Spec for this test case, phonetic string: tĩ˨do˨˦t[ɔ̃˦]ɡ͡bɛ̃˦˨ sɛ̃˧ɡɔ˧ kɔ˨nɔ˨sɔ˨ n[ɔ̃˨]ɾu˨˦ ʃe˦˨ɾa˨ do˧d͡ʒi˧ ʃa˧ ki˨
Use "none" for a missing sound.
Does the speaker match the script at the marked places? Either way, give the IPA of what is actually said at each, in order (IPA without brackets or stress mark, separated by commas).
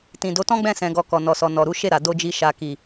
ɔ̃˦, ɔ˨